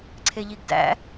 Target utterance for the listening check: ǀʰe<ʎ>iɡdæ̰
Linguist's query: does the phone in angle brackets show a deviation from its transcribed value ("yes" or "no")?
no